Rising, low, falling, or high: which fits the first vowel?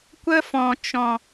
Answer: high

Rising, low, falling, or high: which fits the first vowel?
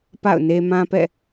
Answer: falling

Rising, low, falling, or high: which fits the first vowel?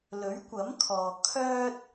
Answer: rising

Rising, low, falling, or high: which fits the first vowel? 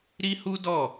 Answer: high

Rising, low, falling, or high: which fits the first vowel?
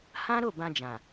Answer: high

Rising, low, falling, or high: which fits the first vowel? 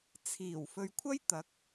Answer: low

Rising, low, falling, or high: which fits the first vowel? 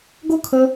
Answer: falling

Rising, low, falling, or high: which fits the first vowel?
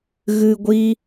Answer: low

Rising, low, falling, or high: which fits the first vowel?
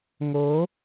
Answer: rising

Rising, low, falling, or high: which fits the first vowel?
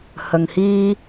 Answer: low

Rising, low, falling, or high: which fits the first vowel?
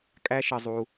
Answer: high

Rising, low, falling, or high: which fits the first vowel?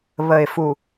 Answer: low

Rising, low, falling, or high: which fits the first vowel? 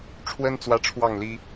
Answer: high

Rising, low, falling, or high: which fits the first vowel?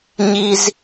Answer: high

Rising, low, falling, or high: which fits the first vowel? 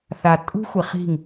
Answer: low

